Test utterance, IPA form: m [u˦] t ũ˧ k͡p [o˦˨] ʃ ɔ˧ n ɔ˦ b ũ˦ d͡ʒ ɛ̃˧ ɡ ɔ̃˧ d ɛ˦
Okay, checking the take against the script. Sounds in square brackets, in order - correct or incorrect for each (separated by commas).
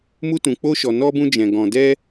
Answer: correct, incorrect